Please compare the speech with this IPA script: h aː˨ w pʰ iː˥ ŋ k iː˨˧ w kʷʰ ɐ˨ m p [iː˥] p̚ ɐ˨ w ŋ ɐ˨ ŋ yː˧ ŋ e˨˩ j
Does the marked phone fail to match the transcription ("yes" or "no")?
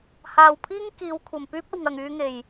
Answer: yes